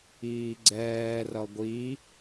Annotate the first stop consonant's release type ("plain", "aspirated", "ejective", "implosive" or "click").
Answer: click